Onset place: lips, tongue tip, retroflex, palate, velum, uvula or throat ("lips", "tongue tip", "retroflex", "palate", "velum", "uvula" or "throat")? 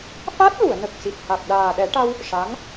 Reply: lips